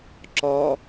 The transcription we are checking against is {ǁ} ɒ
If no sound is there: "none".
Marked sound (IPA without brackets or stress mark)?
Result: ǁ